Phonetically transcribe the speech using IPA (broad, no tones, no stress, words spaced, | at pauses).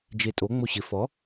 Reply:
d͡ʒetʼo ŋ͡moɕɪ fɔ